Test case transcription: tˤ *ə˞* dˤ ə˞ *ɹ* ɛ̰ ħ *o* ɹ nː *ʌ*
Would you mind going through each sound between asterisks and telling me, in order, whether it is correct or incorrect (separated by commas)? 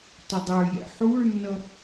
incorrect, incorrect, incorrect, correct